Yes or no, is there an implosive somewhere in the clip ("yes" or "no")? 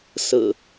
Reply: no